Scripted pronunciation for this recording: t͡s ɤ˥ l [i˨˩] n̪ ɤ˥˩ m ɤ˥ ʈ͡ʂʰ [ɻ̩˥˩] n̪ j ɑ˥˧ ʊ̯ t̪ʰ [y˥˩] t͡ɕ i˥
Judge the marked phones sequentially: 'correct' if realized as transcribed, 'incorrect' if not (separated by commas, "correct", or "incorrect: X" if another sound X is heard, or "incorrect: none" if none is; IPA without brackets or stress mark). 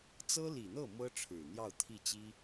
correct, incorrect: ɻ̩˨˩, incorrect: i˥˩